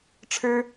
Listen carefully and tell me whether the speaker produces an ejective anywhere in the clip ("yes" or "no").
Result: no